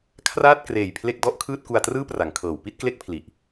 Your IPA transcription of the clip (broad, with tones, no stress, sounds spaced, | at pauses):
kʰ r aː˥˩ t̚ k r eː˨˩ j pʰ l e˥˩ k̚ d ɔ˥˩ ʔ kʰ ɯː˥˩ t̚ k u˧ a̯ t r ɯː˥˩ p r a˩˦ ŋ kʰ ɤː˩˦ w p i˦˥ t̚ k l e˥˩ k̚ pʰ l i˨˩ ʔ